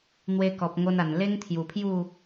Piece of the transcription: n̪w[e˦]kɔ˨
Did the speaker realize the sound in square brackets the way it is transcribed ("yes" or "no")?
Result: no